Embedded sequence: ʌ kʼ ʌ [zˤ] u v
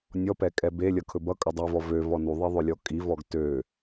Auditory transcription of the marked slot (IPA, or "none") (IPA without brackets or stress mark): dˤ